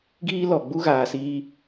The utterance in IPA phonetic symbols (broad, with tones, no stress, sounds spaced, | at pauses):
ɡ iː˦ l ɔ˨ ɡ͡b u˦ ɣ aː˨ s iː˧